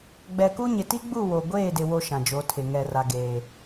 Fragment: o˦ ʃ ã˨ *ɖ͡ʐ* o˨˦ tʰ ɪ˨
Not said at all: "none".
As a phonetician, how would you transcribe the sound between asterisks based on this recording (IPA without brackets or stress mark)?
d͡ʒ